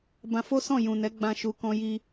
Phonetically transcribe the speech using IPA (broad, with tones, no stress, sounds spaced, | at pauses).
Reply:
b ã˧ f o˦ s ɔ̃˦˨ j ũ˨ n ɛ˨˦ ɡ͡b ã˧ ʃ u˨ k ɔ̃˧ j i˧